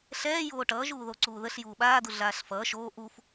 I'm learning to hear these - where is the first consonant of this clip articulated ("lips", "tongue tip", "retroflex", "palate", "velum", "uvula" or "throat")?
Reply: tongue tip